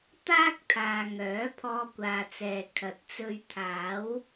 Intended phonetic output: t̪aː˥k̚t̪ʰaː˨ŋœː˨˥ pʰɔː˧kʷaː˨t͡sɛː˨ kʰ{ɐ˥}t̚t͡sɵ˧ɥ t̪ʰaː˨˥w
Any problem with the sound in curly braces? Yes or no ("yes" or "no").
yes